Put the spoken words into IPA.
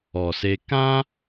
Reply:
ɔ˨ s e˧ k ã˦

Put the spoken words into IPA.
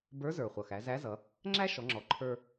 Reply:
b ə˞˧˥ z ə˞˩ χʷ ʌ˩ x æ˩˧ z æ˧˥ z ʌ˩˧ | ŋ͡ǁ æ˥ ʃ ɔ˩˧ ŋ͡ǁ ɔ˩ ǃʰ ə˞˧

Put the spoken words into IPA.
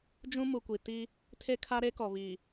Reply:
d͡ʒ ũ˦ m u˨ kʷ i˨ t i˦ | tʰ e˦ kʰ a˦ ɾ e˦ k ɔ˨ β i˨

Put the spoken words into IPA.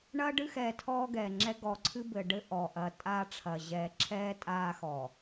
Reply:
ɳ ɐː˦ ɖ ɨ˦ x ɛː˨ tʰ ɔː˦ ɡ ɛː˨ ŋ͡ǁ ɛ˦ ɡ ɔ˨ ǀʰ ɨ˦ b ɘ˨ ɖ ɘ˦ ʔ ɔ˨ ʔ ɐː˨ tʼ aː˦ ʈ͡ʂʰ ɐ˨ ʑ ɛː˨ ǁʰ ɛː˦ tʼ aː˦ x ɔ˨

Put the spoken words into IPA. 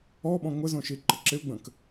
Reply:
ɔ ɓ ɔ̃ ŋʷ ɪ z õ ʃ i ǃ ə ǁ ɪ u̯ ɡ͡b ə̃ k

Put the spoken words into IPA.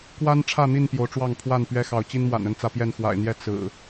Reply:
k w a˦ n ʈ͡ʂʰ ä˥˨ n̪ i˥˨ n p j o˨˦ ʊ̯ ʈ͡ʂ w ɑ˥˨ ŋ pʰ w a˥˨ n p ɥ ɛ˦ x ɑ˨˦ ʊ̯ t͡ɕ i˦ n m w a̰˨˩ n ə˦ n t͡s ä˨˦ p j ɛ˥˨ n x w a̰˨˩ ɪ̯ n̪ j ɛ˥˨ t͡s ɹ̩˨˩

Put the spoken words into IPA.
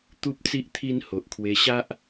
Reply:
t̪ u˦ p̚ t͡s i˦ ʔ t̪ʰ i˦ n h o˨ ʔ kʰ w e˧ ɕ a˦ ʔ

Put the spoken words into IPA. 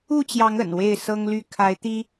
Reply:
u˥˨ t͡ɕ j ɑ˨˦ ŋ ə̰˨˩ n w e˥˨ ɪ̯ s ɤ˦ ŋ l y˥˨ kʰ a˨˦ ɪ̯ t̪ i˦

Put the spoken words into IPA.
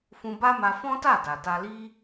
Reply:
f ũ˧ b a˦ m a˧ f ɔ̃˦ t a˦˨ d a˨ t a˧ l i˦

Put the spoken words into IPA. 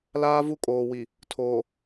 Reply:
l aː˦ v u˦ kʼ oː˨ w i˨ | tʰ oː˨

